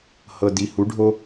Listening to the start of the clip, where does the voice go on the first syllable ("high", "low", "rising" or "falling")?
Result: low